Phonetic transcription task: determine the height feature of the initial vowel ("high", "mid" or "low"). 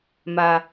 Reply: low